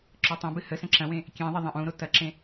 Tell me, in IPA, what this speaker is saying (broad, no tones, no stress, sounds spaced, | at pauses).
ǁ ɔ tˤ ɐ̃ b ɨ h ə s ɐ̃ ǁ ɐ̃ w ẽ | kʲ ẽ ðˤ ɐ ðˤ ɐ̃ ʔ ũ ɾ o t ɐ ǁ ẽ